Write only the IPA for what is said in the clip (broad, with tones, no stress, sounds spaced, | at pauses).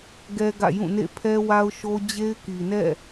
ɡ ɛ˦ ɡ ä̰˦˨ j ũ˦˨ n ḛ˦˨ pʰ ɛ˦ w a˦ ʊ̯ ʃ o˦ d͡ʑ e˦ ɪ̯ k i˨ n ɛ̰˦˨